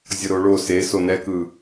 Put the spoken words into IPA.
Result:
zʲ ʌ ɾ o ɭ o s e s o n ɛ k ɯ

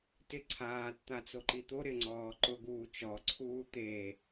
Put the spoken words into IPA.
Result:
t ɪ ǀʰ aː t t̪ a t͡s o ǃ i t̪ o ɾ ɪ ŋ͡ǀ ɔː ǃ ʊ ɡ uː t͡ʃ ɔ ǀʰ uː t̪ e

